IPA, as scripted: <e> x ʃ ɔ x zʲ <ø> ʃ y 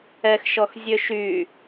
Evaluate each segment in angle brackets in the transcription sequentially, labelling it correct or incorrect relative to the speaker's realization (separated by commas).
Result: incorrect, correct